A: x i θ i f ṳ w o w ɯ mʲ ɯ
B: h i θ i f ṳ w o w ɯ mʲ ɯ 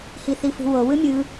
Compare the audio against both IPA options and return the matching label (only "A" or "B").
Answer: B